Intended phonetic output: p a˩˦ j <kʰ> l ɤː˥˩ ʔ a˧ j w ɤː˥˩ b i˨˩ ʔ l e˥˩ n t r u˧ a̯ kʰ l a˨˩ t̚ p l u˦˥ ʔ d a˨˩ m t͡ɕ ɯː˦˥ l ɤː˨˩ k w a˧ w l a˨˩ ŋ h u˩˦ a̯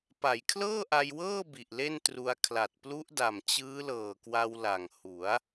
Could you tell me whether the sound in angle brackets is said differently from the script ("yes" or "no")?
no